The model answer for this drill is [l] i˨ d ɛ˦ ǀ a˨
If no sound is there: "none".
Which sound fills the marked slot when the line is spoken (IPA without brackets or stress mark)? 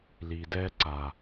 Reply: l